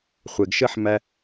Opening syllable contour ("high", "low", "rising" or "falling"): low